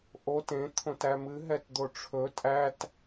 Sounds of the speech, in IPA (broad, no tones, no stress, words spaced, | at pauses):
ʔot ẽ t̪ʰõtæmɨ ɦɛtd̪oʈ͡ʂʰɵ tʼæt